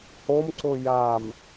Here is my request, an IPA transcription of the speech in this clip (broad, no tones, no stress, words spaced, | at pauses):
homǀʊ jam